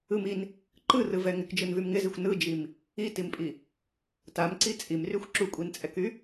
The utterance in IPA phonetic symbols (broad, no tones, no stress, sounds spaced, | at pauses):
ɯ m i n | ǃ ɯ r ɯ v ɛ ŋ ɪ k d͡ʒ ɯ n v y m ŋ ɪ z i xʷ n ɯ d͡ʒ i m | i t i m pʼ i | t a m ǀ i t͡sʼ i m r y xʷ ǁ u kʷʼ i n t͡sʼ ɛ k y